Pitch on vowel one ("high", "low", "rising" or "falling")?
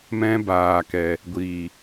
high